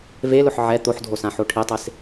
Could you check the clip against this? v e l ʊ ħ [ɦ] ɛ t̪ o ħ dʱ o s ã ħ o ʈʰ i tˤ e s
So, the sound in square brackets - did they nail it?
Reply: no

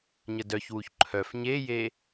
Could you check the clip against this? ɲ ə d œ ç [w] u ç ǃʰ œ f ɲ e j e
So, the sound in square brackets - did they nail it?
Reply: yes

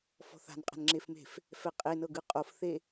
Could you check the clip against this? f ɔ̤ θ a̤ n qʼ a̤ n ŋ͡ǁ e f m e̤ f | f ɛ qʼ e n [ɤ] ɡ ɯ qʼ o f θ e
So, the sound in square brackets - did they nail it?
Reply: yes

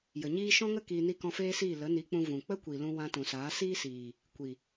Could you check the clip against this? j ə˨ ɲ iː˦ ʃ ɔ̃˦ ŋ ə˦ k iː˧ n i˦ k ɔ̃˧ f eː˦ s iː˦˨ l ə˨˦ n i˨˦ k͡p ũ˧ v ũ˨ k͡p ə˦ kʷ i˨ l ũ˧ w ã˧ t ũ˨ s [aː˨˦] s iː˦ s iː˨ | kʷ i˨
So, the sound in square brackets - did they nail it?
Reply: yes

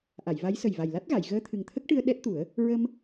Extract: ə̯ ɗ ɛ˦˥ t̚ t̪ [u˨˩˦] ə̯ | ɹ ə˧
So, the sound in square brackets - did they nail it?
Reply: yes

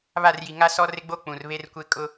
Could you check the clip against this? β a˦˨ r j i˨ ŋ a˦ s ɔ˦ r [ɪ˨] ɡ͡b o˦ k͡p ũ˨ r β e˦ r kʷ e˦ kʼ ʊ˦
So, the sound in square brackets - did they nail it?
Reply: no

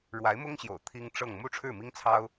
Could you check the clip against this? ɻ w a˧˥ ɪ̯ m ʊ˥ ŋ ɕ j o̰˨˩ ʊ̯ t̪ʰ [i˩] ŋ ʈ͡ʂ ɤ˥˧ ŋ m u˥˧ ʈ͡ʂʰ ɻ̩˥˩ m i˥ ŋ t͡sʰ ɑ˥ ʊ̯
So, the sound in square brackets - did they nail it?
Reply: no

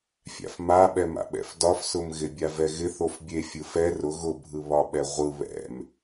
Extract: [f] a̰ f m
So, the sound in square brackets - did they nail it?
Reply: no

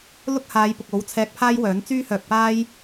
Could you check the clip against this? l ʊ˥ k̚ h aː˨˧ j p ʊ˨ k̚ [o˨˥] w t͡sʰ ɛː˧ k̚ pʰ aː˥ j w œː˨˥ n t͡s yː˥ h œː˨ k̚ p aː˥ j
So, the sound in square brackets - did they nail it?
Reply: yes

